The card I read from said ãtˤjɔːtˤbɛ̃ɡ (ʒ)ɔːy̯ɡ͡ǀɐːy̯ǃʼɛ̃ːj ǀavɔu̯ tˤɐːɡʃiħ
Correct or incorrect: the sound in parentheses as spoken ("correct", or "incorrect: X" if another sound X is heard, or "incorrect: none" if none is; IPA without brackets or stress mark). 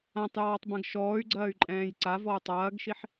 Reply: incorrect: ʃ